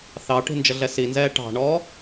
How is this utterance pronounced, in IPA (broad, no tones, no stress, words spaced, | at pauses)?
θɑʈi̤ nd͡ʒəɮɛsinzɛː ʈɑ̤ɳɔː